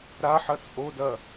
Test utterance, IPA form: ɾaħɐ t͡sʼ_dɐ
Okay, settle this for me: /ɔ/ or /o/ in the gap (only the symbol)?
o